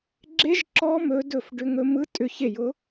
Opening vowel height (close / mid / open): mid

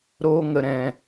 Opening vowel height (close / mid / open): mid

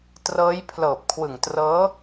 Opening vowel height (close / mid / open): mid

